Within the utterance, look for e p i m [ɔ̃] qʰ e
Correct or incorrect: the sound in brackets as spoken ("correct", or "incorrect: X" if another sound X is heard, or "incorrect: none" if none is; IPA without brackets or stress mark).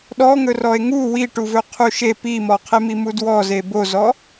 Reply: incorrect: ɔ